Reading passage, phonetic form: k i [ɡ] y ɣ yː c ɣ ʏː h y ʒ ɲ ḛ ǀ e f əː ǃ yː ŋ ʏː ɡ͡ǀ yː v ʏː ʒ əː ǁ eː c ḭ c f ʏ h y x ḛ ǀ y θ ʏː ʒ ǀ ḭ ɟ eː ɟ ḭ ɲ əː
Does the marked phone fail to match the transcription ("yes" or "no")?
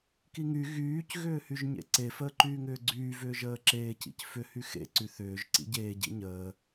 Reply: yes